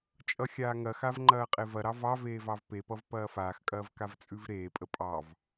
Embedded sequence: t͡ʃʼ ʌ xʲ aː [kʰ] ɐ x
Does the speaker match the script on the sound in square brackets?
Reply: no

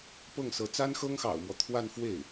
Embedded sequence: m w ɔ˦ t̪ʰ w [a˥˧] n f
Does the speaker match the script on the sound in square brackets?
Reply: yes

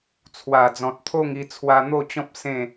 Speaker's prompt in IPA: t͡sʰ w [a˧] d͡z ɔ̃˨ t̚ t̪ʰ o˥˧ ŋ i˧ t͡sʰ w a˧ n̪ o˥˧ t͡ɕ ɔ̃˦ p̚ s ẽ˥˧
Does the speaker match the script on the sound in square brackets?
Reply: no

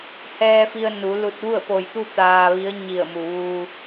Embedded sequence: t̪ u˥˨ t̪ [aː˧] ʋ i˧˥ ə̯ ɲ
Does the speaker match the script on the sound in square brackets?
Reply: yes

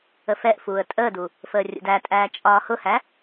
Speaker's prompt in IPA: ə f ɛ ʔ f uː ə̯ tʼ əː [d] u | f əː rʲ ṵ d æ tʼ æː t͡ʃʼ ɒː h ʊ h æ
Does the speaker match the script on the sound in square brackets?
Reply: yes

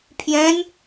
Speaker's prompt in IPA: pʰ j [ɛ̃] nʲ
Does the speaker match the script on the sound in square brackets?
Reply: yes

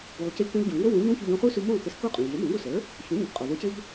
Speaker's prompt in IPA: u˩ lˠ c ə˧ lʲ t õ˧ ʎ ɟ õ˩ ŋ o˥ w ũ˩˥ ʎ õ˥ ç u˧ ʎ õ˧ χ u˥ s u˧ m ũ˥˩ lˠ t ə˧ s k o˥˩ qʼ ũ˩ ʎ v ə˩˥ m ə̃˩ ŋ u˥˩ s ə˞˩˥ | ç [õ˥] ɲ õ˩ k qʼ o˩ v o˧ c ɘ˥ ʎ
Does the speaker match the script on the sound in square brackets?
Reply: no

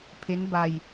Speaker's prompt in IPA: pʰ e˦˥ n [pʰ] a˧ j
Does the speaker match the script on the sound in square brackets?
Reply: no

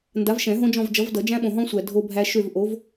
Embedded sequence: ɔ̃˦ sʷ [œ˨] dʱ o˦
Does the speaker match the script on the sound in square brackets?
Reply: no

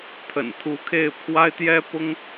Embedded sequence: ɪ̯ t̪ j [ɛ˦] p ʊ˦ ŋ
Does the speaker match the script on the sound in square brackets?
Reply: yes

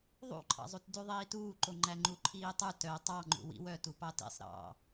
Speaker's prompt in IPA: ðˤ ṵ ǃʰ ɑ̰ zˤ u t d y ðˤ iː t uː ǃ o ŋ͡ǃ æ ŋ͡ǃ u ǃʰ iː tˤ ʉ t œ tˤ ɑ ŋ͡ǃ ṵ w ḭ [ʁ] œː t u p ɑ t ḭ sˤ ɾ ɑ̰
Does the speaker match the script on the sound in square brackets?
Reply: no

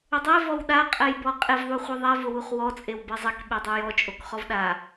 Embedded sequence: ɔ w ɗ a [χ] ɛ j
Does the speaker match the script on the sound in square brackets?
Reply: no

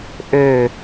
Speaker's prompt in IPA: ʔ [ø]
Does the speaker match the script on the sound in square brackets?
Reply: yes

